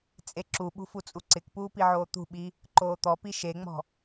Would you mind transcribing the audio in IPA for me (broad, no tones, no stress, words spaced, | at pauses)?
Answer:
t͡sʼeǁuɓṳ fut͡sʼuǀɪkpuː piʕoːt̪ṳɓi | ǃoːt̪ɔpi ʃeŋ͡mɔ̤